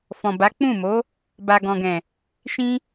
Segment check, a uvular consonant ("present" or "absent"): absent